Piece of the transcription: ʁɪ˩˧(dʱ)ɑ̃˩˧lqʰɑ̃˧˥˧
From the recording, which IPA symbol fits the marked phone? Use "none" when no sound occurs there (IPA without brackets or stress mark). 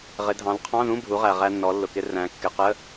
dʱ